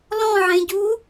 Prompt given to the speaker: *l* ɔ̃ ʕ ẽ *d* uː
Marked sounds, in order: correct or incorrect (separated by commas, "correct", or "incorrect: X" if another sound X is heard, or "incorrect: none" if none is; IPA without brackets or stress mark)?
correct, incorrect: ɟ